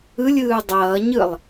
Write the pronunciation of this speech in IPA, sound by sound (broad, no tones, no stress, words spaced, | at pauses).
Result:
ɯlʲɯː dˤʌːɲɯlˠ